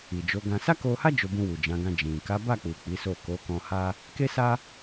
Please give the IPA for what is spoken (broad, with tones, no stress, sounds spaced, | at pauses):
i˨ d͡ʒ o˨˦ ɡ ã˧ s a˦ k o˧ h a˦ d͡ʒ o˧ b ũ˧ w u˨ d͡ʒ ã˨˦ ɡ ã˧ d͡ʒ ĩ˨ k a˨˦ b a˦˨ k͡p u˨ k͡p i˨˦ s o˦˨ k o˨˦ k ɔ̃˧ h a˦ | k e˦ s a˦